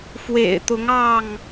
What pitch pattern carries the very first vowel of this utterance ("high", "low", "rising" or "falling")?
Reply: low